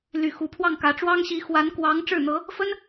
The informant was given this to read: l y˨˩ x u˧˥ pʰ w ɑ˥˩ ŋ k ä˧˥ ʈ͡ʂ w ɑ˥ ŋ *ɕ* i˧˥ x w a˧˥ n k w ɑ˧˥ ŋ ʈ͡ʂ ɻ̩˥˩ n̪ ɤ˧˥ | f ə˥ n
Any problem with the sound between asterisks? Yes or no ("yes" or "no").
no